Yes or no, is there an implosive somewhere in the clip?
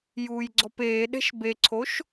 yes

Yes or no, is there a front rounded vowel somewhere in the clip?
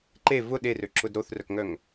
yes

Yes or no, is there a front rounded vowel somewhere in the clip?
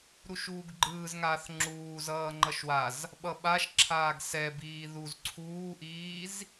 no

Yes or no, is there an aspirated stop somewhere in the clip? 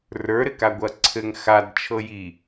yes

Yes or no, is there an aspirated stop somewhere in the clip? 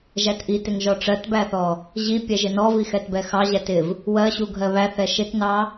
no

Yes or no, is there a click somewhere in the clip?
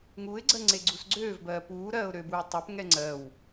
yes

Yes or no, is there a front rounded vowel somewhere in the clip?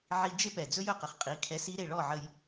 no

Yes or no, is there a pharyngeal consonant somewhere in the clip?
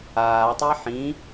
yes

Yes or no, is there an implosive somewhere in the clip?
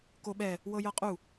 yes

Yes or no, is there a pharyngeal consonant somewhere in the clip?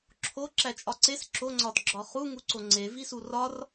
no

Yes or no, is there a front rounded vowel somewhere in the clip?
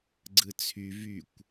yes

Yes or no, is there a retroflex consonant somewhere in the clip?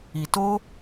no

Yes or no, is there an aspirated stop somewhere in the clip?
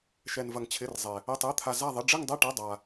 yes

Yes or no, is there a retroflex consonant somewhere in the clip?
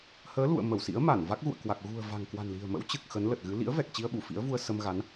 no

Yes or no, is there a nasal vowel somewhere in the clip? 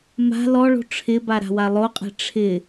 no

